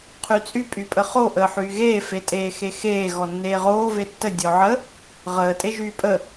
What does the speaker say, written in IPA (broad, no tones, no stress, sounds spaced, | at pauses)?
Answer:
qʰ y t͡sʼ y pʼ y pʼ ə χ o ʔ əː ħ yː ɣ eː f e tʼ eː x e x eː ɣ ɔ nː eː ʁ oː v e tː ə dʲ ɔ ʕ ə | ʁ əː tʼ e ʒ yː pʼ ə